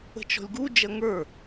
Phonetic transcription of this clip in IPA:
ə̤ t͡ʃ ɔ̤ lʲ ɡ u d͡ʒ ɐ ŋ ə˞

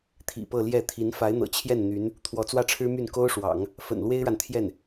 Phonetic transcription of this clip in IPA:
t̪ʰ ḭ˨˩ p ɤ˥˧ l j ɛ˥˩ t̪ʰ i˧˥ n f a˧˥ ɪ̯ n̪ ɤ̰˨˩ t͡ɕʰ j ɛ˥˩ n n̪ y˧˥ n | t̪ʰ w ɔ˧˥ t͡s w ä˥˩ ʈ͡ʂʰ ɻ̩˥ m y˥˩ n k o˥ ʊ̯ ʂ w ɑ̰˨˩˦ ŋ | f ə̰˨˩ n l w e˥ ɪ̯ ɻ a˨ n t̪ʰ j ɛ˥˩ n

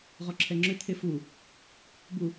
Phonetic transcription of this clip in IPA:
ʁ ɔ ǁʰ ɛ ŋ͡ǁ ʏ t̪ʰ e f u | b u

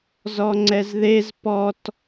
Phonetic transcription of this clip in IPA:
z ɔ ŋ͡ǀ ɛ z ð e z p ɔ t

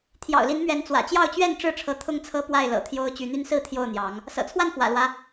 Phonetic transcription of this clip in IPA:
t̪ʰ j ɑ̰˨˩ ʊ̯ l i˨˦ n m ɥ ɛ˨˦ n t͡s w ä̰˨˩ t͡ɕ j ɑ˥˨ ʊ̯ t͡ɕ ɥ ɛ˥˨ n ʈ͡ʂ ɻ̩˥˨ ʈ͡ʂʰ ɤ˨˦ t̪ʰ ʊ˥˨ ŋ t͡sʰ ɤ˦ p w a˥˨ ɪ̯ l ɤ̰˨˩ t̪ʰ j o˦ ʊ̯ t͡ɕ y˨˦ n̪ y˦ n s ɹ̩˥˨ t̪ʰ j o˥˨ ʊ̯ n̪ j ɑ˨˦ ŋ | s ɤ̰˨˩ t͡sʰ w a˥˨ n f w ä̰˨˩ l w ä˦

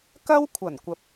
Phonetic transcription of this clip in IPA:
k ɐ˥ w kʷʰ ɐ˨˩ n kʷ ɐ˨ p̚

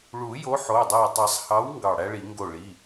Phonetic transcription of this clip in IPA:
ɭ u˨˩˦ j o˨˥ ħ o˩˧˩ dˤ æ˧˩ tˤ ɯ˨˩˦ sˤ h ɑ˨˥ w ŋ ɡ ɑ˧˩ ɽ æ˥ ɭ i˨˩˦ ŋ ɡ o˧˩ ɭ i˩˧˩

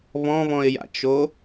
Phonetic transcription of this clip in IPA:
β ɔ̃ β ɔ̃ ɪ̯ j a̰ t͡ʃ o

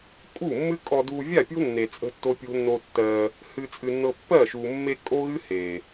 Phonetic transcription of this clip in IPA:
kʼ u˦˨ mː ɨ˦ kʼ ɔ˧ d u˧ vʲ a˦˨ pʲ o̤˦ nː e˧ t͡sʼ ə̤˦ tː o˦ pʲ o̤˦ nː o˧ tː ɜ˧ | h ɨ˧ t͡sʼ ɨ˧ nː ɤ˧ pː ɜ˦˨ ʃ u˨ mː e˧ kʼ o˦ ɣ ɨ˦ h e˨

